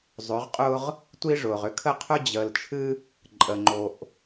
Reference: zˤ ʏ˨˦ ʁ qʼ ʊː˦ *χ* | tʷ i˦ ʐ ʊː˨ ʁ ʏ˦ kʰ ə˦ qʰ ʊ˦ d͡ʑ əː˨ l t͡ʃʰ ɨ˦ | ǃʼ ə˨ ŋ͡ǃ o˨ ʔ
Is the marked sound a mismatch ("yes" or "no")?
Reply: yes